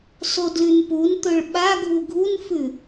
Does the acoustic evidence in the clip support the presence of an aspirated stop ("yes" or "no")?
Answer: no